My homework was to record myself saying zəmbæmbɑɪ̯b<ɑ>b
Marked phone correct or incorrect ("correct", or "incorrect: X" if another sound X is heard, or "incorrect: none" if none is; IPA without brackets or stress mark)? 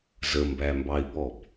incorrect: ɔ